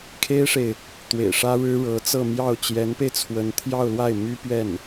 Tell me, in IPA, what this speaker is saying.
kʰ e˥ ɪ̯ ʂ e˨ ɪ̯ | t̪ w ḛ˨˩ ɪ̯ ʂ ä˥ ɻ ɻ̩˥ ɻ ɤ˧˥ t͡s ɤ˥˧ m j ɑ˥˩ ʊ̯ t͡ɕ j ɛ˧˥ n p e˧ ɪ̯ t͡sʰ w ə˧˥ n t̪ʰ j ɑ˥˧ ʊ̯ l w a˥˩ ɪ̯ m y˥ p ɥ ɛ˥˩ n

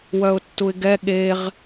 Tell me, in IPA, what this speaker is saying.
w œ ʊ̯ tː u ɪ̯ ɡ ɛ ɠ e ʁ

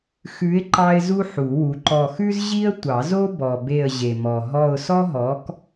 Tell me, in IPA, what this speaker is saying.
x ʉ˨˥ ɪ̯ ǃ ɑ˥ ɪ̯ z u˥ ħ u˨˩˦ w u˨˥ ǃ ɔ˦˨ x ʉ˥ z ʑ i˥ ə̯ tʷ ɑ˨˩˦ z o˥ b ɔ˨ b e˦˨ ə̯ ʑ e˨ m ɔ˨ ɦ ɔ˦˨ ʊ̯ s ɔ˥ ɦ ɔ˨˥ k

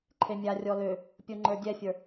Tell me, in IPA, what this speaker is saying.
ǃʰ e mʲ a rʲ ɔ l ø | pʲ o ŋ͡ǃ ə˞ dʲ ɛ fʲ ə˞

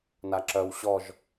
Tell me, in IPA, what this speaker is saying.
n a ǁ œ w ɕ ɔ ʒ

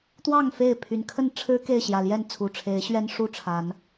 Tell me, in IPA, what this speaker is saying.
t̪ w ɑ˥˨ ŋ f e˥˨ ɪ̯ pʰ y˨˩ n kʰ ə˥˨ n ʈ͡ʂʰ ɻ̩˦ k e˥˨ ɪ̯ ɕ j ä˨˩ l j ɛ˥˨ n t͡sʰ u˨˩ ʈ͡ʂʰ e˨˦ ɪ̯ ɕ ɥ ɛ˦ n ʂ u˥˨ ʈ͡ʂʰ a˨˦ n

